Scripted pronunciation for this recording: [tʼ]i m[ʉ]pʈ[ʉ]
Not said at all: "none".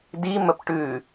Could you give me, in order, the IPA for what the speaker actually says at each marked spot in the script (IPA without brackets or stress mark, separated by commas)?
d, ə, ʉ